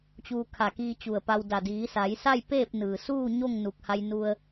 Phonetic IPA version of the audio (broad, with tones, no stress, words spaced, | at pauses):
t͡ɕuː˧kʰa˧˩kiː˧ t͡ɕu˧˩ə̯pa˧wda˧˩ diː˩˧sa˩˧j sa˥˨jpeː˥˨p̚nɯː˩suː˥˨ ɲo˥˨ŋnu˧˩k̚ ha˧jnu˧ə̯